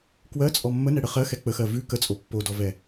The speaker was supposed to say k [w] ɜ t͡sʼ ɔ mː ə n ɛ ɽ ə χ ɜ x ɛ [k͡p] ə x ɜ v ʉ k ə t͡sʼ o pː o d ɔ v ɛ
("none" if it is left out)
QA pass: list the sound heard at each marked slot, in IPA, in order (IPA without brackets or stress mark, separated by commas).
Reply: w, k͡p